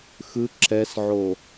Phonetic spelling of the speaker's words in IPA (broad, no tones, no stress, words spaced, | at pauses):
xɯ ǁɛsʕo